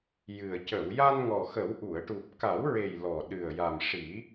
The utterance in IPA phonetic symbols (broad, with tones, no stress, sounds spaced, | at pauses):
j ɨ˨˩ ə̯ c ə˨˩˨ w j a˧ n ŋ ɔ˨˩ x ə˨˩˦ w ʔ u˨˩˨ ə̯ ʈ u˨˩ p̚ k a˨˩˦ w ɹ e˨˩ j l ɔ˨˩ ɗ ɨ˨˩ ə̯ j a˨˩ m ʂ i˨˩˦